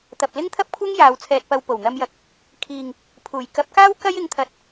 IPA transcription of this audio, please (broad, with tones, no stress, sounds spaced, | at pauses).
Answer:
t̪ ɐ˨ p̚ l ɪ˥ ŋ t̪ʰ ɐ˥ p̚ kʷʰ ɐ˥ ŋ j aː˨˧ w t͡sʰ ɛː˧ t̚ p ɐ˧ w p o˨˩ w n̪ ɐ˧ m j ɐ˨ k̚ | kʰ iː˨ ŋ | pʰ uː˨˩ j k ɐ˨˥ p̚ k aː˥ w k ɐ˥ j ɪ˨˥ ŋ t̪ʰ ɐ˨˥ t̚